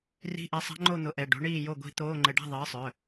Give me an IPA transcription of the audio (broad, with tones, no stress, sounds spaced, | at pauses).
r i̤˧˥˧ ʔ ɛ˨˥ sˤ a̤˦˥ ŋ͡ǃ o˥˨ n̪ ʊ˨˥ ʔ ɛ˩˧˩ ɖ o̤˨˥ ɳ iː˥˨ j o˥˨ ɡʷ i̤˦˥ t̪ oː˧˥˧ ŋ͡ǃ ɘ˧ ɖ a̤˥˨ ðˤ ɘː˨˥ sˤ œ˩˧˩